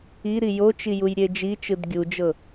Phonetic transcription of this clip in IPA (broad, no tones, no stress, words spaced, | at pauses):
iɾi jot͡ʃijujɾʲe d͡ʒit͡ʃɯd ɡʲud͡ʒɤ